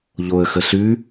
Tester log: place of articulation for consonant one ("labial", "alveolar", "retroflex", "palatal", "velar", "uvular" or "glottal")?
palatal